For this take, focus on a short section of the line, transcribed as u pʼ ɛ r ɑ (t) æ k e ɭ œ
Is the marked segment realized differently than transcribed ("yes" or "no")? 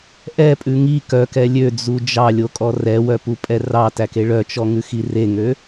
no